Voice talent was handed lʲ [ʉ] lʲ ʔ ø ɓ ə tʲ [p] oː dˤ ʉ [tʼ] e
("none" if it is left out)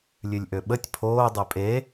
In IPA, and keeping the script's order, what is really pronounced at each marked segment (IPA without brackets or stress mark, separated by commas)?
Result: ʉ, pʰ, pʼ